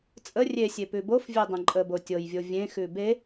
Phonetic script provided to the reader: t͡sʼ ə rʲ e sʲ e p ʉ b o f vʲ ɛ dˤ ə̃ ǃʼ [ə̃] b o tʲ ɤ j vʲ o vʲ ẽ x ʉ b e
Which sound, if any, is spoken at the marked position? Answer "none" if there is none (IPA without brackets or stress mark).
ə